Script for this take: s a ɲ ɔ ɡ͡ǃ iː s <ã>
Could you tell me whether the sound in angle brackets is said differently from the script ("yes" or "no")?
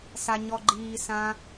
no